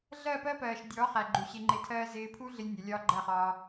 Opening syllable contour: falling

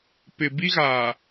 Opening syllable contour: low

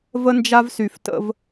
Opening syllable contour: high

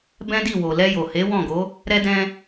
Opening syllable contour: high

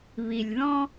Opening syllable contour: low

